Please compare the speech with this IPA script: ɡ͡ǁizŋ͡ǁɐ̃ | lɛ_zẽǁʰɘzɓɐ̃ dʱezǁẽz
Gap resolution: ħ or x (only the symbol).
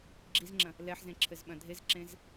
ħ